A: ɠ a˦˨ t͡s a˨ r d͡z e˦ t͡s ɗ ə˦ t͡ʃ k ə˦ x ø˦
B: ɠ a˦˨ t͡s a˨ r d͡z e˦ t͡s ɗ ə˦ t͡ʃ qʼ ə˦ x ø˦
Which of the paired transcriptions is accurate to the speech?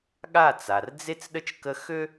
A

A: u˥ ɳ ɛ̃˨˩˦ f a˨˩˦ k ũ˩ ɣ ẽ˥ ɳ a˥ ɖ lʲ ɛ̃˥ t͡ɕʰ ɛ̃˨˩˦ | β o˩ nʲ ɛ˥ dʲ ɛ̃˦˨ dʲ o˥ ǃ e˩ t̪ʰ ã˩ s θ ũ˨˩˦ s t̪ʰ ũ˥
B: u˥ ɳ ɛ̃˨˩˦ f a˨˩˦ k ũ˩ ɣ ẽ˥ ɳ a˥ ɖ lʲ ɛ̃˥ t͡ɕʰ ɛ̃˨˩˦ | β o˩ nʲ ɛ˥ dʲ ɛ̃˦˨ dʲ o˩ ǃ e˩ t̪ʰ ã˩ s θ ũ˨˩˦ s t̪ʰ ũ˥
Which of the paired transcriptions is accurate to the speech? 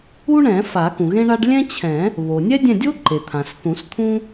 A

